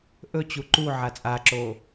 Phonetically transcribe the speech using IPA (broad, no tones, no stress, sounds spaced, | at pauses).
ʔ ɵ t͡ɕ u ǃ u ʕ a t͡sʼ a ǁ o